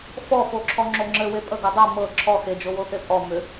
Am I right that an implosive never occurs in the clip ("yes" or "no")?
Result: yes